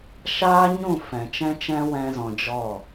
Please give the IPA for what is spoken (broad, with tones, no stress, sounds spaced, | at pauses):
ʃ aː˦ ɲ ũ˦˨ f ɛ̃˨ t͡ʃ ɛ̃˦ t͡ʃ ɛ̃˦ w ɛ̃˦ z ɔ̃˧ d͡ʒ ɔ˦˨